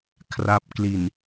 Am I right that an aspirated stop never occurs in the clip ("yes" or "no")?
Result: no